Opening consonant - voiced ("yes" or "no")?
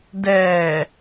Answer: yes